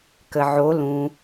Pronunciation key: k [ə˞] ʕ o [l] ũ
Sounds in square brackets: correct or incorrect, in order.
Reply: incorrect, correct

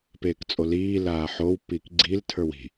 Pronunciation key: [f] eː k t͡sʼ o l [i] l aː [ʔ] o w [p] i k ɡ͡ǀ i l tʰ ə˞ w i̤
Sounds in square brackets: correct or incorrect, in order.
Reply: incorrect, incorrect, incorrect, correct

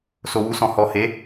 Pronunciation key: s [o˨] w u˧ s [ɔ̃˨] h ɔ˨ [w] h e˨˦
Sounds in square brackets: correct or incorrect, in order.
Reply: correct, correct, incorrect

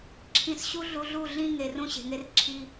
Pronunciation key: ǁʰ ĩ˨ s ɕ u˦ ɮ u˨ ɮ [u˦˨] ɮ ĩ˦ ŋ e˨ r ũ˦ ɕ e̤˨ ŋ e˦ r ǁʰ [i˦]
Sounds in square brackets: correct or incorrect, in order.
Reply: correct, correct

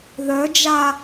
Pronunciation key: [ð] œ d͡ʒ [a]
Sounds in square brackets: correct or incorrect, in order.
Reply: correct, correct

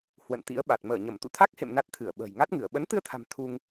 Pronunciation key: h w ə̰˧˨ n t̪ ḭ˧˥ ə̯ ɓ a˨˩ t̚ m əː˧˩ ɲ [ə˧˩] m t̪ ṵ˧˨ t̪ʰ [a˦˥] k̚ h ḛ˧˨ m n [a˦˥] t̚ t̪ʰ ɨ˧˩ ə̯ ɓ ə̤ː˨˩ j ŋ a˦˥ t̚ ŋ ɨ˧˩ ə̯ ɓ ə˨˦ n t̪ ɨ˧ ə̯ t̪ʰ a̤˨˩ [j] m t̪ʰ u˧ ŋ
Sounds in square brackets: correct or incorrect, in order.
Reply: correct, correct, correct, incorrect

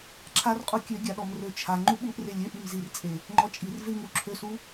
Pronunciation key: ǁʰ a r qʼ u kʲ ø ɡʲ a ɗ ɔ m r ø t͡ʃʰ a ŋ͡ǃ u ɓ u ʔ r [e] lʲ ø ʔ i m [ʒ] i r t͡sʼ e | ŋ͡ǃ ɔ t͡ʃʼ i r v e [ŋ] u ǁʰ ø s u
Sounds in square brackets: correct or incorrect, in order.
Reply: correct, incorrect, correct

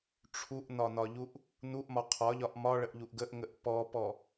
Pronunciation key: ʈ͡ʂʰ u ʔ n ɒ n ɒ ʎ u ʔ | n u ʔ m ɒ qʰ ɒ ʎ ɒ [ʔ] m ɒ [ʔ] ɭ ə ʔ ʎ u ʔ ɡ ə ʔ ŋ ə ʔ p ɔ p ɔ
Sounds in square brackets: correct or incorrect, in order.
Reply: correct, incorrect

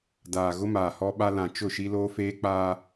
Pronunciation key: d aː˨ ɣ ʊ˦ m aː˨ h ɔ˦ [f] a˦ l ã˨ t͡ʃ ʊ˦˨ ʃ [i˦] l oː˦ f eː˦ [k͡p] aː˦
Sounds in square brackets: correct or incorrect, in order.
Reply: incorrect, correct, correct

